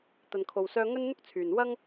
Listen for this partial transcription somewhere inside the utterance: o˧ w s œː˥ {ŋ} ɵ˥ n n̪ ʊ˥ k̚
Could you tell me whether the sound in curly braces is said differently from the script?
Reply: no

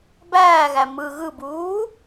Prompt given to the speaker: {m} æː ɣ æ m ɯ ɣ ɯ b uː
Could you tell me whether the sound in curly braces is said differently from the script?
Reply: yes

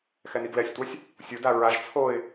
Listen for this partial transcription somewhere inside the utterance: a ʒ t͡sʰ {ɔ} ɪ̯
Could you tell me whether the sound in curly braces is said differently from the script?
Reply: yes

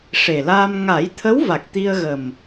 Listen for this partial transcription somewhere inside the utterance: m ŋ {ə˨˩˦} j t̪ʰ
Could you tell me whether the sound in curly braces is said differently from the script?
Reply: yes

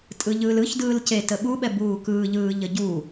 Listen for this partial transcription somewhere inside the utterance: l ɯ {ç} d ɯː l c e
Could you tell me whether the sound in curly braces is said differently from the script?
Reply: no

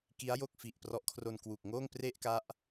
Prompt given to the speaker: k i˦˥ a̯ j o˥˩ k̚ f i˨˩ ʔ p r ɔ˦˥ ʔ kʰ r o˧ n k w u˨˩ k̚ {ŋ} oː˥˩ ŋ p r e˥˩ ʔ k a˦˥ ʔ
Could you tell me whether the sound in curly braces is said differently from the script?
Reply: no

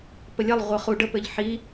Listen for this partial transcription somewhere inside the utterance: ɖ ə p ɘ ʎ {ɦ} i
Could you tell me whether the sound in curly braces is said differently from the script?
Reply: yes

